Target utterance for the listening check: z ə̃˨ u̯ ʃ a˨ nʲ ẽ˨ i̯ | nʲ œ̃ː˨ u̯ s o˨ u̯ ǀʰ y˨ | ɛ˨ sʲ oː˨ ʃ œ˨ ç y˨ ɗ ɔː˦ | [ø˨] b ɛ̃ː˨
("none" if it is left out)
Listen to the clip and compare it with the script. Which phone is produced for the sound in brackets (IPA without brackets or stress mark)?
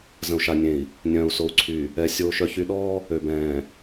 ø˨